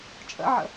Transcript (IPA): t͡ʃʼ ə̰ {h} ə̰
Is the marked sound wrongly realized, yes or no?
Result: yes